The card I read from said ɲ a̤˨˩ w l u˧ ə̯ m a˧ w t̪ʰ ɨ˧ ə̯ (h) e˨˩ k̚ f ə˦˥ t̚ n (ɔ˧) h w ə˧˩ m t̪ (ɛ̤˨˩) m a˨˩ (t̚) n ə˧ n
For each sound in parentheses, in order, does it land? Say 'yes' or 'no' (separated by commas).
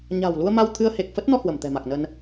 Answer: yes, yes, yes, no